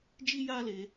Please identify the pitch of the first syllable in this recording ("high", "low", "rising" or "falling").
high